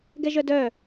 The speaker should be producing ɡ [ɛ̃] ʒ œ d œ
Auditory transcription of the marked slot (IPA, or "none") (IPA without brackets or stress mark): ɛ